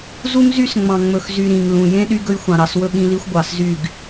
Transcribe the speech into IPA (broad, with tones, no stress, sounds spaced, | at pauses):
z u˦ ŋ z y˦ s ŋ͡m ɑ̃˨ ŋ͡m ɵ˨ x z y˨ ɾ ĩ˨ ŋ l ũ˨ j ẽ˦ ɗ y˦ ɡ ɵ˦ j xʷ ɑ̃˨ ɾ ɑ˨ s w ɵ˦ ɠ ĩ˦ l i˦ xʷ ɡʷ ɑ˨ s z y˦˨ ɡ